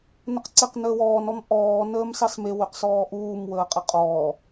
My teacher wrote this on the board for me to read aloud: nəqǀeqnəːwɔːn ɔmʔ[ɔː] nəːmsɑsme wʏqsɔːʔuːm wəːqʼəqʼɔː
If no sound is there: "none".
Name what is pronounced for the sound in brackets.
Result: ɔː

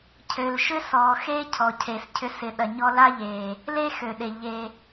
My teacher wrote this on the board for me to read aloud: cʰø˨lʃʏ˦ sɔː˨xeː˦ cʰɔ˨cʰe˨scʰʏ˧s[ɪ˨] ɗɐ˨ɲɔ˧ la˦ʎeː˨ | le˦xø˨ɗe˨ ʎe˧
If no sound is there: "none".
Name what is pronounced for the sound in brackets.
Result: ɪ˨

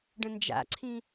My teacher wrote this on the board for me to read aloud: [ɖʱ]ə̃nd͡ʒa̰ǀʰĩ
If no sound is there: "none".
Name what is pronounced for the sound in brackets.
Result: ɖ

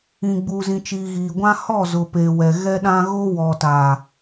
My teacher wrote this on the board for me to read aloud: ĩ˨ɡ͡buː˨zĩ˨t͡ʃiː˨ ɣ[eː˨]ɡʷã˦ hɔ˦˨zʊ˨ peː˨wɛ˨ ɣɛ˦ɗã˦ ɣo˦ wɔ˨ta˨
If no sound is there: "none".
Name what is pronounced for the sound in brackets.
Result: iː˨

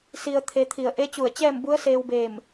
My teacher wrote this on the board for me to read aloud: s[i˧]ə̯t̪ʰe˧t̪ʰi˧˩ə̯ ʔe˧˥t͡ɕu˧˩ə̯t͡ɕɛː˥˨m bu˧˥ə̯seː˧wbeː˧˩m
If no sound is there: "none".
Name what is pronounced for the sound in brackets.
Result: i˧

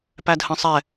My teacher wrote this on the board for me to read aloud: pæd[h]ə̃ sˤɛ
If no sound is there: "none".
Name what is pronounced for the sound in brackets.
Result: h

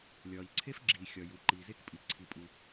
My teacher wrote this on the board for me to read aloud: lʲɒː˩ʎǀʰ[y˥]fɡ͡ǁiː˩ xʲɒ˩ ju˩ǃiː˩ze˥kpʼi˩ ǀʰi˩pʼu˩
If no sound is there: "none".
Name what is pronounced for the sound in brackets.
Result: e˥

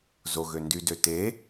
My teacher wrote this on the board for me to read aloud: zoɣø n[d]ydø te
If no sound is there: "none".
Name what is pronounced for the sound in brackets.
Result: d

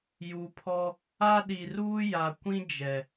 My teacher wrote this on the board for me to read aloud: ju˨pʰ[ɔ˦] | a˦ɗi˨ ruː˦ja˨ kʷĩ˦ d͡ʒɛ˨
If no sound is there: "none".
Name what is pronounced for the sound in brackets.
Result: ɔ˦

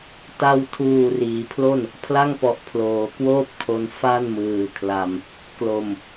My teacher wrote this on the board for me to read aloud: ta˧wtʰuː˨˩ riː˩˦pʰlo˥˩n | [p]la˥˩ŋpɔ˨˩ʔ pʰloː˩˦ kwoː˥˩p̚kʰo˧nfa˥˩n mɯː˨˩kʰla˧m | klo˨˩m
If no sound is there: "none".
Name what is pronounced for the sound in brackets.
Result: pʰ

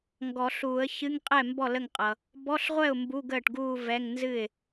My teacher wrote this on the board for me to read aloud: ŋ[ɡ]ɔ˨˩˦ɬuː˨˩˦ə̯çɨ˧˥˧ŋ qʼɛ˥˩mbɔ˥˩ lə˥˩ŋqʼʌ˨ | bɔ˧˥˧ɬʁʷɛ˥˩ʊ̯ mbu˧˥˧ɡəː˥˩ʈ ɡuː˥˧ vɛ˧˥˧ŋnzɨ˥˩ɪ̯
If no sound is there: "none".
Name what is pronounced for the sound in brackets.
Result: ɡ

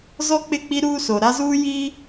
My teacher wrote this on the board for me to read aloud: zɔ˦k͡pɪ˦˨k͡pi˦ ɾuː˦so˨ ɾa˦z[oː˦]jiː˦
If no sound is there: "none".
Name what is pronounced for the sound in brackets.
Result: uː˦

